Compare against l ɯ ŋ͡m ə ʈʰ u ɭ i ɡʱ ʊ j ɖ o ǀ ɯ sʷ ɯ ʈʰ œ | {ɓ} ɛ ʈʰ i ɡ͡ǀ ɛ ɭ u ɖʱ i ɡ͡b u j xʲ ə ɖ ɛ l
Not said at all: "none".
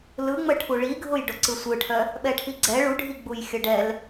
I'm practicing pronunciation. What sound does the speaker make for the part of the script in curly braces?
ɓ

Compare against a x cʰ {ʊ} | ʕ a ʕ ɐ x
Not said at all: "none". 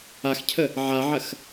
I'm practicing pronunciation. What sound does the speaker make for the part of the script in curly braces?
ə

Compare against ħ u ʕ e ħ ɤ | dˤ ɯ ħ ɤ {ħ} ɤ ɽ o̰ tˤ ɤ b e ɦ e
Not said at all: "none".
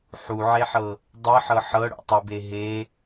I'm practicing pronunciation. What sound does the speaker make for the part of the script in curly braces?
ħ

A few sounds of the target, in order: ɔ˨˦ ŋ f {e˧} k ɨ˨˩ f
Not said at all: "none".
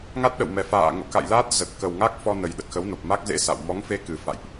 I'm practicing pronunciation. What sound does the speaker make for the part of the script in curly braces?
e˧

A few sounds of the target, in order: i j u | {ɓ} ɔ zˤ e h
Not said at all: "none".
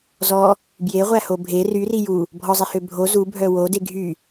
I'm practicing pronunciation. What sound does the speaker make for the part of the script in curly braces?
bʱ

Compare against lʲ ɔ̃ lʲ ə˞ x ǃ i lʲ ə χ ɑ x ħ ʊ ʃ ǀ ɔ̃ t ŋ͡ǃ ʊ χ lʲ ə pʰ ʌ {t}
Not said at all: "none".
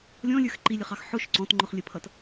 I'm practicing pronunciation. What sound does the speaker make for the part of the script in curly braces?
t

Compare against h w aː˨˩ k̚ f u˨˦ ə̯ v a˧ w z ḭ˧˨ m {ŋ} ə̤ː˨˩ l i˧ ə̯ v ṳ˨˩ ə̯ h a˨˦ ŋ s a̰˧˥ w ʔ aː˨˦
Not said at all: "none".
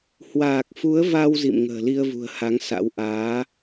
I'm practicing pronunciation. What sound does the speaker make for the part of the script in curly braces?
ŋ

